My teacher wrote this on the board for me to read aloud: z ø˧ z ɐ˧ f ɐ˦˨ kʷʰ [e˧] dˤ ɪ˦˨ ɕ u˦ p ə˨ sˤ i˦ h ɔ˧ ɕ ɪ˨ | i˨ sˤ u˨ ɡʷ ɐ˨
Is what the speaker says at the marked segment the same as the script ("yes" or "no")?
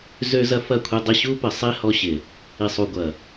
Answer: yes